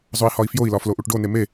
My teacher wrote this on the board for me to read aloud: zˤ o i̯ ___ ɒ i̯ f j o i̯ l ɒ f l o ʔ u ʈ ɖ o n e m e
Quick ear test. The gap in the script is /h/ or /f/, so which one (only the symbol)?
h